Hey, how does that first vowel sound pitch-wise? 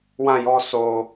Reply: falling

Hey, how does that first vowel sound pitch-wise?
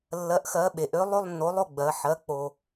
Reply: rising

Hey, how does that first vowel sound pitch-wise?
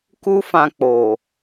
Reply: high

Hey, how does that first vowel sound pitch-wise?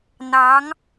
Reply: rising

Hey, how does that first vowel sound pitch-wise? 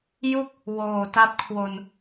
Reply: falling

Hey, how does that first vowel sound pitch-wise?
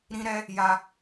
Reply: high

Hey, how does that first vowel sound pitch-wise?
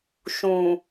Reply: low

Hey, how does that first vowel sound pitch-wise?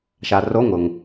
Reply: low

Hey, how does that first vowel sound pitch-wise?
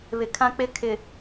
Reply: low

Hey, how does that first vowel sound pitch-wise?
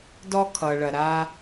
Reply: high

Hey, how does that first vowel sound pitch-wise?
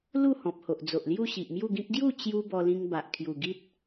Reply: falling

